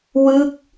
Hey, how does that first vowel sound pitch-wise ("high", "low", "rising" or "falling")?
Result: falling